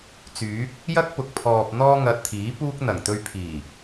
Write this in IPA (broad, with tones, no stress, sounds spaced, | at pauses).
t͡s yː˨˥ k̚ | j ɐ˥ k̚ p ʊ˨ k̚ pʰ ɔː˨ p̚ n̪ ɔː˥ ŋ ɐ˧ t̚ t̪ʰ iː˨˥ p uː˥ k̚ n̪ ɐ˨˩ ŋ t̪ ɵ˧ ɥ pʰ iː˨˩